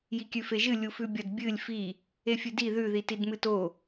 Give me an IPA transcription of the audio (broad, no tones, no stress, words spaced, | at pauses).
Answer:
jikʲʉfeʒɨ lʲufʉbʲɐd bʲɨlʲ fi | efʲɨdi ðʉ ðitidmɨto